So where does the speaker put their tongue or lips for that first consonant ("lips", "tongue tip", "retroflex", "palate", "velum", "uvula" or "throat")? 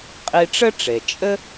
uvula